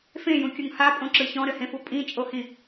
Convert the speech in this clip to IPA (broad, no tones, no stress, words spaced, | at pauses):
fẽjũkʲuŋ hapʼõǁɯ çɔ̃ɾɘhẽfu pʼĩt͡ʃʼohĩ